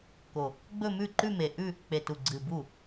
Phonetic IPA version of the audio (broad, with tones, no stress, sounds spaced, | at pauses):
k o˨˩ | ɡ͡b ɵ˥˧ m ʉ˥˩ ǃ ʉ˥˧ m e˨˩ ʔ ʉ˥˧ | k͡p e˨˩ t u˨˩ ɡ͡ǀ ɨ˨˩ b u˥˩